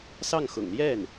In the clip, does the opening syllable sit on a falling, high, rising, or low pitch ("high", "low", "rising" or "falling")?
falling